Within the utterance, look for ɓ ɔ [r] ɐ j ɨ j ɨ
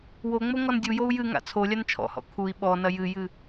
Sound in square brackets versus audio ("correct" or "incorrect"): incorrect